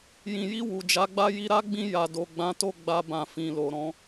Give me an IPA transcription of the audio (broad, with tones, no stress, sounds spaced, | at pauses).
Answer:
j ĩ˨ j i˧ w u˨ d͡ʒ a˨˦ ɡ͡b a˦ j i˧ ɾ a˦ ɡ͡b ĩ˧ j a˨ d o˨ ɡ͡b ã˨˦ t o˦˨ ɡ͡b a˧ b ã˨ f ĩ˨ l o˨ ɾ ɔ̃˨˦